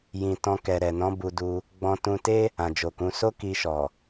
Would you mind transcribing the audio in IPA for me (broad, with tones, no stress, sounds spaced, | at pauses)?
j ĩ˨ t ɔ̃˧ k ɛ˨ ɾ ɛ˨ n ɔ̃˨˦ b u˧ d u˧ | ɡ͡b ɔ̃˧ t ũ˧ t e˦ | ã˨ d͡ʒ o˨ k ũ˨˦ s o˦ k i˧ ʃ ɔ˨